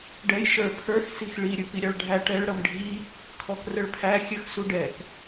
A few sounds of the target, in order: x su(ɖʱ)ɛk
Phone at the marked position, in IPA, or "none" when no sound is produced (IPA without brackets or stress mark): ɖ